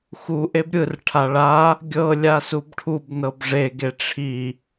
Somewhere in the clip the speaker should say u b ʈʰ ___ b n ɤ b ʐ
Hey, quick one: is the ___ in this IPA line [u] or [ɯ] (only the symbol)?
u